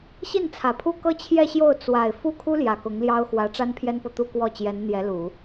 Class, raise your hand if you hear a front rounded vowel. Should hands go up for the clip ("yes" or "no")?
no